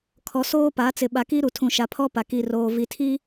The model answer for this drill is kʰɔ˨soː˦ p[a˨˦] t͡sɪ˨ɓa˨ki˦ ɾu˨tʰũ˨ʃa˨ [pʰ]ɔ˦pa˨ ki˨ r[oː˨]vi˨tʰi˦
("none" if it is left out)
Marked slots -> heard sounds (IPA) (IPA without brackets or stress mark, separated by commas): a˨˦, pʰ, oː˨